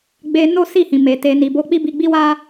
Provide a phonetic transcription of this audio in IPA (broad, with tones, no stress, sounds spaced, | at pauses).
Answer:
ɡ͡b e˧ n o˦ s i˦˨ h ĩ˨ m e˨ t e˨ n i˨ b o˧ k͡p i˦ b i˧ ɡ͡b i˦ w a˦